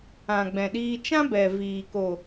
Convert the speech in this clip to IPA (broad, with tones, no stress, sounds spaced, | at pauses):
ã˨ ɡ͡b ɛ̃˨ ɗ iː˧ t͡ʃ ã˦ b ɛ˨ v iː˨ k o˨